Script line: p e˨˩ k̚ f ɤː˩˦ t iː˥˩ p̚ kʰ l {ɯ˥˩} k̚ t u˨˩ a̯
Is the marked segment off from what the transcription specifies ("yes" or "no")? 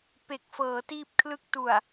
no